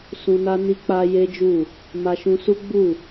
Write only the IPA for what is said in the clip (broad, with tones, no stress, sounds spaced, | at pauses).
s ũ˧ n a˦ n i˧ k͡p a˧ j e˦ d͡ʒ u˦˨ | m a˧ ʃ ũ˧ s u˦ ɡ͡b u˦˨